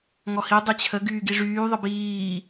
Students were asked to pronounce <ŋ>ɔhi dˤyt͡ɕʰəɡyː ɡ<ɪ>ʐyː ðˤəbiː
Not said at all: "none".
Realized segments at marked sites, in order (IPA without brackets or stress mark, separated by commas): ŋ, i